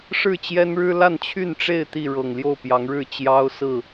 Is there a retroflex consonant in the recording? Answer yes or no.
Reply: yes